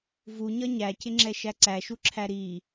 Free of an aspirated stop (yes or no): no